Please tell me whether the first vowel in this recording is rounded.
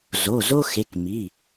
yes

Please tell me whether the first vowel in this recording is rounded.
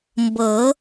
no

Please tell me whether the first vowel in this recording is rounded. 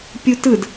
yes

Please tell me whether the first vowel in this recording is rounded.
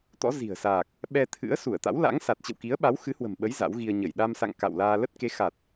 yes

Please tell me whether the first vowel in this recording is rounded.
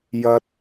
no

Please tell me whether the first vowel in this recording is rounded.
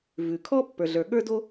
yes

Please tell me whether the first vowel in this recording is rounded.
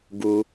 yes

